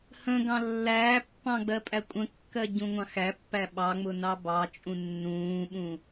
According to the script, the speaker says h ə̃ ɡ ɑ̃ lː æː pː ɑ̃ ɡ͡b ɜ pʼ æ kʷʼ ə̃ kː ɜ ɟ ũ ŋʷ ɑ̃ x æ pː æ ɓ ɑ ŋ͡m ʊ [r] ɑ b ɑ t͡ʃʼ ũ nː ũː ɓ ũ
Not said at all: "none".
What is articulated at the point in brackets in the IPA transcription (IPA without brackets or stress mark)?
n